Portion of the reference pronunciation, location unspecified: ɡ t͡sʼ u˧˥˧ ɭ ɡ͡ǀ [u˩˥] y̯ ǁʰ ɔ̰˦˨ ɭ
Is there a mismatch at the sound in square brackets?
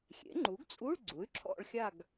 no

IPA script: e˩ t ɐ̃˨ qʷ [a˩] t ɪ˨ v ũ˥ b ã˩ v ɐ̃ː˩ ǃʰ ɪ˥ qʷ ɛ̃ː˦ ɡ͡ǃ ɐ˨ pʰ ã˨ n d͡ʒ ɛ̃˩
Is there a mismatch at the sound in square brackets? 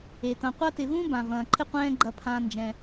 yes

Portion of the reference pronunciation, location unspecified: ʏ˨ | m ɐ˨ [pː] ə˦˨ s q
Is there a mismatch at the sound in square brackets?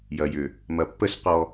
no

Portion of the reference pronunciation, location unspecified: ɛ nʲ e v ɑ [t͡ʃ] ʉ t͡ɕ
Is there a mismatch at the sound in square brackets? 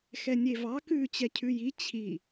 yes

